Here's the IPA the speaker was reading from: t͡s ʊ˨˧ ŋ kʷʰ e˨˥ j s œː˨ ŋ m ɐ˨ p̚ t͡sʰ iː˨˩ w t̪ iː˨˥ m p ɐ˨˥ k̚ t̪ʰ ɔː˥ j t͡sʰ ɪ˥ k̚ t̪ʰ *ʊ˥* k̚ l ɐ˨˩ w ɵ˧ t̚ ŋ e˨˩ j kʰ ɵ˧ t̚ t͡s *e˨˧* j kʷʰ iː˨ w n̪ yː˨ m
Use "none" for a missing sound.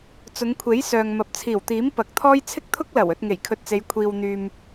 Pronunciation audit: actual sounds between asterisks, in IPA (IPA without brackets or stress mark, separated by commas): ʊ˥, e˨˧